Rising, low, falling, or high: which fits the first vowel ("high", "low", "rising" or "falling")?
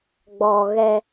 low